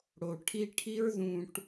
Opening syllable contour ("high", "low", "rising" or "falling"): low